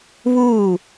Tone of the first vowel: falling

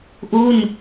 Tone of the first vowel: falling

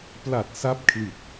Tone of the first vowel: low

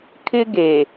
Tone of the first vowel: high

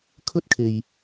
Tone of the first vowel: high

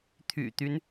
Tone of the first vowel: low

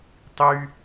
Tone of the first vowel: low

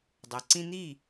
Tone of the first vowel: low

